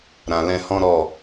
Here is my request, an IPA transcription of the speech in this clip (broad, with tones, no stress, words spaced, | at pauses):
ɾã˨lɛ̃˧ hɔ̃˦ɾɔ˦˨